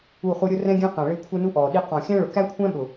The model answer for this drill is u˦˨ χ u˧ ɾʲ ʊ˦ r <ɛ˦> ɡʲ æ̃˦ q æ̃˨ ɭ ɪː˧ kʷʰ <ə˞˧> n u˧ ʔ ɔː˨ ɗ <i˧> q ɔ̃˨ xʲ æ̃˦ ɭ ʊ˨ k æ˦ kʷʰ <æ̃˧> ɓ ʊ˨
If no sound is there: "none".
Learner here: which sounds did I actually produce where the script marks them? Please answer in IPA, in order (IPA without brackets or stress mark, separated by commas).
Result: ɛ̃˦, ə˞˧, i˧, æ̃˦